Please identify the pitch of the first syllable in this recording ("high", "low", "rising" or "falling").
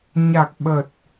low